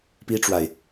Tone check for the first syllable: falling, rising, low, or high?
high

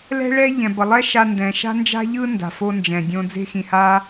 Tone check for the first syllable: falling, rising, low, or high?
high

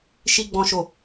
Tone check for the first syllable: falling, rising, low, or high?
high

